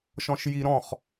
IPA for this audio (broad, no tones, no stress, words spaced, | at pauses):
ʃɔ̃ʃji ɾɔ̃χ